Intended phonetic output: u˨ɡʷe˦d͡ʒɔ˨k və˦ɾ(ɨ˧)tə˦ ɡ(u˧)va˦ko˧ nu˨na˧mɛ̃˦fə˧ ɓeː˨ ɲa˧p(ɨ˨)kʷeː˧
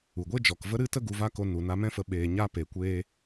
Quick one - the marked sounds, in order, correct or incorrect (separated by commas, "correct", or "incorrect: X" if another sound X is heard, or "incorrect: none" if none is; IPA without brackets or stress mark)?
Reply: incorrect: ɨ˦, correct, incorrect: e˨